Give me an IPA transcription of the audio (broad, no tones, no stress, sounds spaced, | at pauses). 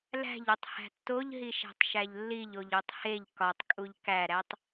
l æ̤ ʎ u tˤ h æ̤ tː o ʎ ɦ i ʃ æ̤ tˤ ʃ æ ʎ lː i ʎ o ʎ u tˤ h e ʎ k ɒ tˤ kʼ u ʎ k æ ɾ æ tˤ